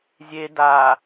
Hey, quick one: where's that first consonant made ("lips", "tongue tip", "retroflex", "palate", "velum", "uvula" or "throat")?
tongue tip